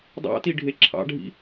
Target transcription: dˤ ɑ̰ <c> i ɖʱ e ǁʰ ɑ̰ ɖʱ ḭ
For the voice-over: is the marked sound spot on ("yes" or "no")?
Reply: no